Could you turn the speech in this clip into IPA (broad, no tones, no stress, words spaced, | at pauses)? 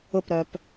ʊpɾœp